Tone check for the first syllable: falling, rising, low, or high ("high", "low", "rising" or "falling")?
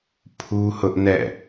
high